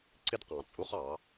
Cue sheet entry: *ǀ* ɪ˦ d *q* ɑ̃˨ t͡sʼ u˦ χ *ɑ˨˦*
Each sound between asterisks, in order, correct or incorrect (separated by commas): correct, correct, correct